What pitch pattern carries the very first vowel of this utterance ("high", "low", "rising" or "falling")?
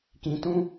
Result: low